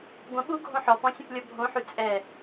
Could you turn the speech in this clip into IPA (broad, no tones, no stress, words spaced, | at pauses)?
ɡʷə̃ ɓu ɡʱõħɔpɔ̃ sʲə̃plʲɔbʱõħy t͡sʼɛ